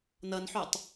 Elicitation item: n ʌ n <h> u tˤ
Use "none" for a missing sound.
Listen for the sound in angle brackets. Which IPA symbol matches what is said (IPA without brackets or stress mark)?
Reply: ħ